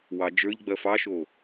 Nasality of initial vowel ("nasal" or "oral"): oral